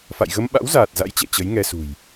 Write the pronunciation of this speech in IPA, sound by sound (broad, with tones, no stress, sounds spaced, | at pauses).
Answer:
f a̰˧˨ j ɣ ə˧ m ɓ a̰˧˥ w z aː˨˩ t̚ z a̰˧˥ j t͡ɕ ɛ̰˧˨ t͡ɕ ə˨˦ j ŋ ɛ˧ s ṳ˨˩ j